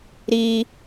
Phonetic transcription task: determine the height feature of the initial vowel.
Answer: high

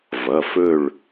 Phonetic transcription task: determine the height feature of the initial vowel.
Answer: mid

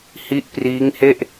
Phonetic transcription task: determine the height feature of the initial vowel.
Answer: high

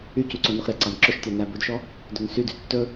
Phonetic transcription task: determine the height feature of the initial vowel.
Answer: high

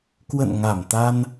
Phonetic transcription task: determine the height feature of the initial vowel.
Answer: mid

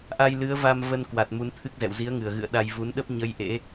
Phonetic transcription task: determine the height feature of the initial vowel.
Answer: low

